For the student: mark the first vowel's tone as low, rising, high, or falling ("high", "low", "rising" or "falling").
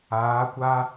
rising